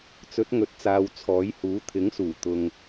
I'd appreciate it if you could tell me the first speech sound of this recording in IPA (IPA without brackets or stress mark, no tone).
t͡s